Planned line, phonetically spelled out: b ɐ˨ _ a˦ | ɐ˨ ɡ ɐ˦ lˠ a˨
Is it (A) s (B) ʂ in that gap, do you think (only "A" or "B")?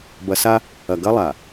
A